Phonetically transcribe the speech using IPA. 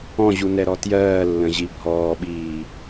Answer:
ɔ̃ʑunɛɾɔ tjɜːlːə̃ʑi bʱɔːɓiː

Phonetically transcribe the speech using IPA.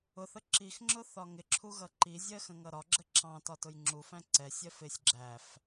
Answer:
ʊθə ǁixŋ͡ǁʊ θɒŋɪǁʰu ɣʌǃizʲɜ xə̃ŋʌɾɒɡ͡ǁə ǁɑ̃tɒ tʊjŋ͡ǁufæ̃ ǀɛsʲɜf ɪsʲ ɡ͡ǁæf

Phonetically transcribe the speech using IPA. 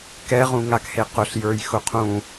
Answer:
kɛʁũŋakhe qʊɬjə˞jxʊ qʰũ

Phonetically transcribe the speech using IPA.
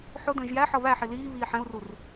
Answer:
ħʊdə̃ːʒ jæħʌ βæħi liːβiː ħɛ̃u̯rur

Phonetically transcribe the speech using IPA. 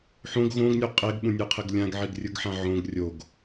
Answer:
ħõɡ ɣõɡnʲo qʼeɡɓũnʲɯqʰeɡ lʲãɡʕiɡrʲɯɡħã ʕõɡ rʲoɡ

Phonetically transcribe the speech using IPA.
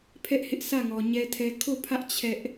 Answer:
pʰɛ˦ʔhɪ˦ʔ sʰä˦˨ŋɔ˨ ɲɛ˦tʰɛ˦ kʰo˦˨pʰä˦ʔ t͡ɕʰɛ˦ʔ

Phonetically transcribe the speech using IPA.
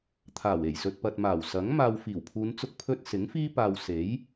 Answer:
t̪ʰaː˨˩we˨˩jsɵ˨t̚pɐ˨t̚ maː˨˩wsɐ˨˥ŋ maː˨wfiː˨˩wpʰuː˨˧n t͡sʊ˥k̚pʰɵ˥t̚ sɪ˨˥ŋfiː˥paː˧w se˨˥j

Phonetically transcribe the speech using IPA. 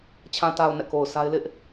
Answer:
t͡ɕʰã˨ta˨ʊ̯ nɛ̰˦˨ko˨ʊ̯ sa˦ɪ̯ lɪ˦ʔ

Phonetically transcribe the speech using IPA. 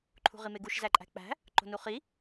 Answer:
ǃʰṳʁimeɡuʃ zæǃʼæ̤k͡pæ̤ | ǃo̤nuχi

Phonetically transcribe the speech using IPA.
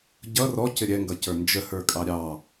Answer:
ɟʌ rɔcɪ ɾʲɛŋɡʌcə˞ nd͡ʒəhə˞kʼɑ ɾʲɑ

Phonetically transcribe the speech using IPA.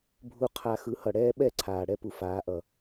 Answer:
bʱu˧ qʰa˧ xɯ˨˦hʌ˨ɽɛː˦ ɓɛ˦˨ ǀʰaː˨ɽɛ˦pu˨ faː˨˦ʔʌ˨

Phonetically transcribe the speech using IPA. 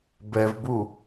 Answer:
bɛvbu

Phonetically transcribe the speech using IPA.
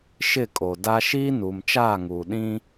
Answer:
ʃɪ˦˨kʼo˨da˦ ʃiː˦nuː˨mt͡ʃaː˦˨ŋuː˨ ɗĩ˦

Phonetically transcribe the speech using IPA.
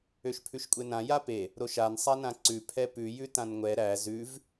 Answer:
øʃpʰʉʃkʷʼenã jape | ɾoʃan sˤanãǀʉ pʰɛpʉ jʉtãnŋʷɛ ɾæ zʉv

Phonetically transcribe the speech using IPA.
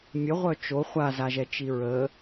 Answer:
mʲəʁʷœ t͡ʃo χʷazaʒɛt͡ʃi ɹə

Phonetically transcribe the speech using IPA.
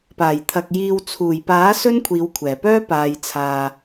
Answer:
paː˨˩jt̪ʰɐ˨k̚ jiː˨wt͡sʰuː˨˩jpaː˨˥ sɵ˥nkʷʰiː˨˧wkʷʰɛː˨˩pœː˥ paː˨jt͡sʰaː˨

